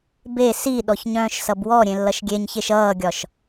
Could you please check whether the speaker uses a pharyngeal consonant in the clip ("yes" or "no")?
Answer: no